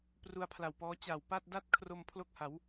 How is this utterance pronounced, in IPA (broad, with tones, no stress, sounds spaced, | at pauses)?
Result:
p r u˧ a̯ pʰ l a˨˩ w p ɔː˦˥ t͡ɕ a˨˩ w p a˥˩ t̚ d a˥˩ t̚ kʰ r o˧ m pʰ l o˥˩ k̚ h a˩˦ w